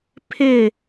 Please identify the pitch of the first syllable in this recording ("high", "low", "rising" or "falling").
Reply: falling